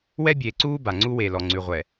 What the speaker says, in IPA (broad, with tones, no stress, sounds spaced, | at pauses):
w ɛ˦ bʲ eː˨ ǀ uː˦ b a˨ ŋ͡ǀ u˦ w e˨ l ɔ˨ ŋ͡ǀ ʉ˨ ʁʷ ɛ˨